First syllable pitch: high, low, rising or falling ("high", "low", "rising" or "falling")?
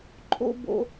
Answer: high